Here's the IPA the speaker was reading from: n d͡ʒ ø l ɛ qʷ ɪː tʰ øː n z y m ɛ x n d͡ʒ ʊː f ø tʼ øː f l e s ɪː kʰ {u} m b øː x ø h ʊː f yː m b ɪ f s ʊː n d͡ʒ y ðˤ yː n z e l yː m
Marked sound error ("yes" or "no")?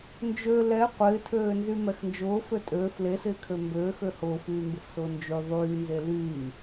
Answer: yes